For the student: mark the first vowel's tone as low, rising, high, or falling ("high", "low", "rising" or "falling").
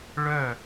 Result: falling